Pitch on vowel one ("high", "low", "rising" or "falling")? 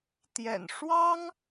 low